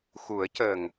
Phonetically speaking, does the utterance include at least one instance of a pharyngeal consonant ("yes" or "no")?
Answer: no